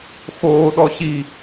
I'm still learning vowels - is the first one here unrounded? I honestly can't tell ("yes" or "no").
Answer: no